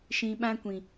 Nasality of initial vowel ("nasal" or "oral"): nasal